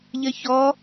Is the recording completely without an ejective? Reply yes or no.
yes